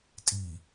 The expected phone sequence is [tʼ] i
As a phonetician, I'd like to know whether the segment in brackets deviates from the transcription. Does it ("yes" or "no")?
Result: no